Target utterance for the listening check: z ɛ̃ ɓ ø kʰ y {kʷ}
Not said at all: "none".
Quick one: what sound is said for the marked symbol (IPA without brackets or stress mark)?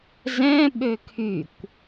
kʷ